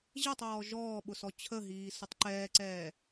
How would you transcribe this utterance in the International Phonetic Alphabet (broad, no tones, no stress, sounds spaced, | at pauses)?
ʑ ɛ tˤ ɔː ʒ ɔː ɓ ʊ s ɔ t͡ɕʰ ə ɦ iː s ʊ tˤ ǃ ɛː ǀ ɛː